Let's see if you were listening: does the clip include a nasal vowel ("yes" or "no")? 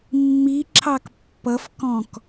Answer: yes